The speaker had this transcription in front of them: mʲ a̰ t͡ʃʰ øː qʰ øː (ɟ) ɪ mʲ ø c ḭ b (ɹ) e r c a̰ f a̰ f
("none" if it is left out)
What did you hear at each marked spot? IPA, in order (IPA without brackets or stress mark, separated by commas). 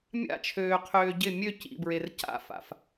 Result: ɟ, ɹ